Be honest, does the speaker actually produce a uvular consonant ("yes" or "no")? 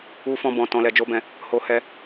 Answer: no